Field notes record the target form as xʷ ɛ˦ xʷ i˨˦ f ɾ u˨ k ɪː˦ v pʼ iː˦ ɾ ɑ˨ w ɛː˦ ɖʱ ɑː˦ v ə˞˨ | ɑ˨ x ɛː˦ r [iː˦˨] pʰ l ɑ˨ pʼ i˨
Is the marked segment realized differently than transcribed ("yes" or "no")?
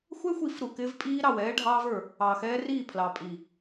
no